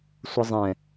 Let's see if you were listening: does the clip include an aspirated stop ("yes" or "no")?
no